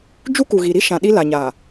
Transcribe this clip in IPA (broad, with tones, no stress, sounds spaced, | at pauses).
d͡ʒ u˦ k u˨ ɣ i˨ ɾ i˦ ʃ ã˨ ɗ i˦ l a˨ ɲ aː˨